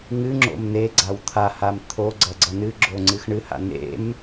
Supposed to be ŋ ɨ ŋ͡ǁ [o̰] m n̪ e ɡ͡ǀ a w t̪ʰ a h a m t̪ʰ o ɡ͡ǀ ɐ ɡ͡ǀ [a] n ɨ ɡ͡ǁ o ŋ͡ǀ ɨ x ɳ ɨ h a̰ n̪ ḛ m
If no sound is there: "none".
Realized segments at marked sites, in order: o̰, ʌ

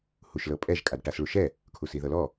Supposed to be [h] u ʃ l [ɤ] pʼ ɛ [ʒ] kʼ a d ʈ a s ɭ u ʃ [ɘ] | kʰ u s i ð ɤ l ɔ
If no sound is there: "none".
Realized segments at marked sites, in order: h, ɤ, ʒ, ɛ

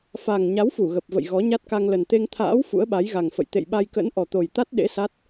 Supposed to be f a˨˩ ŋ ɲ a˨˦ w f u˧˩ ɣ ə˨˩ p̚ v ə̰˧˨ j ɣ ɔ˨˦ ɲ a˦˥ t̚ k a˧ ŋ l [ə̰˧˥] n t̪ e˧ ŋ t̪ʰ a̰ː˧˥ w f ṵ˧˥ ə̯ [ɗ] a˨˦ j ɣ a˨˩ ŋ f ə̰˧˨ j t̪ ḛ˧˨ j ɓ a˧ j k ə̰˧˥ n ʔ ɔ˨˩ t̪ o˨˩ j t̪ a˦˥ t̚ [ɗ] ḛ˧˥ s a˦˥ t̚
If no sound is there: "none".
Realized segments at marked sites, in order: ə˨˩, ɓ, ɗ

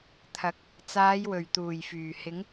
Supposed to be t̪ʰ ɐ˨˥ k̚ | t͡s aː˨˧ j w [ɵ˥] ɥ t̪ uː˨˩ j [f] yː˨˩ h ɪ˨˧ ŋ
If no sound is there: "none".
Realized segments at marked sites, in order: ɵ˨˩, f

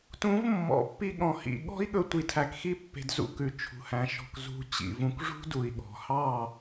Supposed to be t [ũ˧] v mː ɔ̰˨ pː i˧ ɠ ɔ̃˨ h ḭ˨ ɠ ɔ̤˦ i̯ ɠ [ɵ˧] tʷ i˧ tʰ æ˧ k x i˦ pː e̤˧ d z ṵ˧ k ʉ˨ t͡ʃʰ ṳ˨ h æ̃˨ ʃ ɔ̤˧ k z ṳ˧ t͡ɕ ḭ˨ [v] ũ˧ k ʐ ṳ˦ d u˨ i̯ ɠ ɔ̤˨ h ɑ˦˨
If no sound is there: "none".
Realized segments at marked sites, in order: ũ˨˦, ɵ˧, v

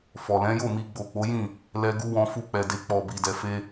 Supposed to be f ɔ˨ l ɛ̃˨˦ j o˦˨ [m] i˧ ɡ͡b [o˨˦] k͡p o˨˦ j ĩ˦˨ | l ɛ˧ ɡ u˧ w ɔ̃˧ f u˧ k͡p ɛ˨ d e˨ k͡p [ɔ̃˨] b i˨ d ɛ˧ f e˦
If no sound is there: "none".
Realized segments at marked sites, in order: m, o˨, ɔ˨

